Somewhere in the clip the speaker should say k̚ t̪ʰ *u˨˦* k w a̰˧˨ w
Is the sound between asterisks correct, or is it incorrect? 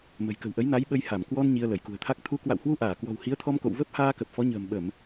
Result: correct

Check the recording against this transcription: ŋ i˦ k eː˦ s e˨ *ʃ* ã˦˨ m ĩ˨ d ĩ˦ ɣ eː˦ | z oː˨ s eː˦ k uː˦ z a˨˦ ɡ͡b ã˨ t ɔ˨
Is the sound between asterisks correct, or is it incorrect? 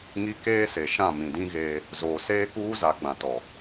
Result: correct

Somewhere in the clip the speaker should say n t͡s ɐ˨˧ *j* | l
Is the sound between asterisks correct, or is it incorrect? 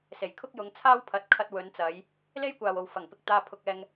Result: correct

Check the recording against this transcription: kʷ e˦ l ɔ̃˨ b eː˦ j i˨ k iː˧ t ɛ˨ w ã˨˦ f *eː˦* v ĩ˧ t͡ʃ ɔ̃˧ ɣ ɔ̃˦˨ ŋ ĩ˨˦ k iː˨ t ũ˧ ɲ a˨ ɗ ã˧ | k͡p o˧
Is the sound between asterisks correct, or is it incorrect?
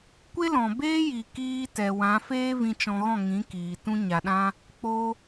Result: correct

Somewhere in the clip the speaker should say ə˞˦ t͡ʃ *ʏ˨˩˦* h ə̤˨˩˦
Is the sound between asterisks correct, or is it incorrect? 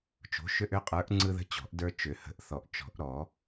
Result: correct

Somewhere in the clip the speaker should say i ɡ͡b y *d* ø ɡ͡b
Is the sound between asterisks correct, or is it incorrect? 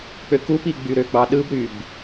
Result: incorrect: ɾ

